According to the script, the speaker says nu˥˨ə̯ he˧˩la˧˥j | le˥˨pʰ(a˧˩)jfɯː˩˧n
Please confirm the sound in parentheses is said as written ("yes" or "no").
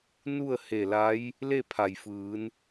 no